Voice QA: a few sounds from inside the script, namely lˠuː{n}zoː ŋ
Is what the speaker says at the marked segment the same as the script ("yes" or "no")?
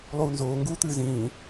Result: yes